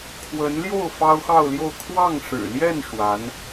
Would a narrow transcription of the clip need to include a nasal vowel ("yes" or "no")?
no